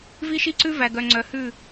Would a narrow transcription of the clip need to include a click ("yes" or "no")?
yes